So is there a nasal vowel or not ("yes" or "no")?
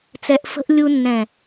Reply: yes